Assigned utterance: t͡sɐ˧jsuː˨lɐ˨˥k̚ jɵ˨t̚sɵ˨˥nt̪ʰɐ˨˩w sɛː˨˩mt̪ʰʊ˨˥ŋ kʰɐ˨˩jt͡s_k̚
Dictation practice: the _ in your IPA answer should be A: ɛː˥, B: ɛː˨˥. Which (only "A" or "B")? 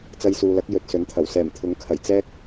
A